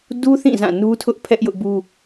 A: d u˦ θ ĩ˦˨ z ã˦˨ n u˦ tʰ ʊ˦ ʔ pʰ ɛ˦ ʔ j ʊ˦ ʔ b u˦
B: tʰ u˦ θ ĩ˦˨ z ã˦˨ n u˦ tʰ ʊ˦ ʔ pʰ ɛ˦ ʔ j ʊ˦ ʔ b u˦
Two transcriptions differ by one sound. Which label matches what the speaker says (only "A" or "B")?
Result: A